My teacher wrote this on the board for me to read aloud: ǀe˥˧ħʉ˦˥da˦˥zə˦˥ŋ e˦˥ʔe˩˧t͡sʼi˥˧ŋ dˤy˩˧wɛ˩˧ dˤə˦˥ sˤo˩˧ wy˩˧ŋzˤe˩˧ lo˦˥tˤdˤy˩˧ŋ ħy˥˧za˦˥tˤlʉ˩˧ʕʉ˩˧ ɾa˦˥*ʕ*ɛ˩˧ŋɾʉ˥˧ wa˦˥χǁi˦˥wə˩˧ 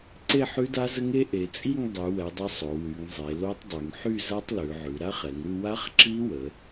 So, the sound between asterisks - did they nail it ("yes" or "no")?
no